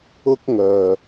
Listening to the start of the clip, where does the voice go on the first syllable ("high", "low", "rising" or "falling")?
high